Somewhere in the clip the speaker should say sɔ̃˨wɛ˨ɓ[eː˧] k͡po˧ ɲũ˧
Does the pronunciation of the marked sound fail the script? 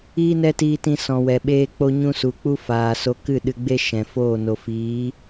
no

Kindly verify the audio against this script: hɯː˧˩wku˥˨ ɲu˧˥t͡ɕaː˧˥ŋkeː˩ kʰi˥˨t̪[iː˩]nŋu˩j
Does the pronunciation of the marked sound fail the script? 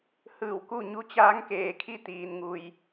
no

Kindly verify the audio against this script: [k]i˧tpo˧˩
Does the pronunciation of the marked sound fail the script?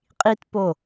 yes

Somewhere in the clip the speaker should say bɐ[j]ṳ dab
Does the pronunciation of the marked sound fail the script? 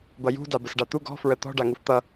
no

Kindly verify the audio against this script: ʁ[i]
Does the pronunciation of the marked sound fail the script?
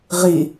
no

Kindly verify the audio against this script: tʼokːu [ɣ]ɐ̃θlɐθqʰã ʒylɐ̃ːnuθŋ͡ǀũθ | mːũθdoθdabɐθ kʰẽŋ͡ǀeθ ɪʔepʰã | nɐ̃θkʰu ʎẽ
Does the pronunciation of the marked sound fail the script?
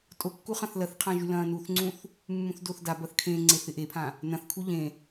yes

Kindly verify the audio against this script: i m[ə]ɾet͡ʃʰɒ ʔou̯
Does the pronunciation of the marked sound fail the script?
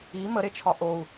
no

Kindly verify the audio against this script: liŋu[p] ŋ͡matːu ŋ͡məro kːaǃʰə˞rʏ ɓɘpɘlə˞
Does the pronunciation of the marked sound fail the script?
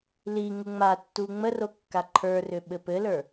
yes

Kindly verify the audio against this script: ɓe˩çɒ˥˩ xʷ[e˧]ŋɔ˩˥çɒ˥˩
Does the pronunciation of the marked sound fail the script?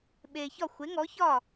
yes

